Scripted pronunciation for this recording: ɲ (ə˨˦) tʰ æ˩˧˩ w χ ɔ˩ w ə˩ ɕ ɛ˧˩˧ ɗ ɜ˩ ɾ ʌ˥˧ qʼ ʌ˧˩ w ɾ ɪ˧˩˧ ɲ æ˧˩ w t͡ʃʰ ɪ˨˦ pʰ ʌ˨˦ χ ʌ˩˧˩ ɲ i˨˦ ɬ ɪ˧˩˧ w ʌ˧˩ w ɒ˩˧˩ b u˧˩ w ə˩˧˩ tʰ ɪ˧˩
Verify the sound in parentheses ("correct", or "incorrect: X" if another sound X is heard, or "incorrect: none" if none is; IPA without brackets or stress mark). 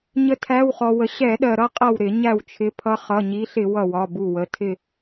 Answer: correct